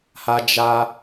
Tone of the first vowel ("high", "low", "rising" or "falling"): high